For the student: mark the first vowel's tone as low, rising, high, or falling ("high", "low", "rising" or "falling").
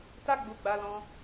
high